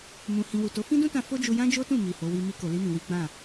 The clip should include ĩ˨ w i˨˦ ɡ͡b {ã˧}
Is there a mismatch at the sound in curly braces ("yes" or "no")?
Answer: yes